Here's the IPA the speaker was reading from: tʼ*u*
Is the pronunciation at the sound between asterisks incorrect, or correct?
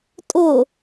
incorrect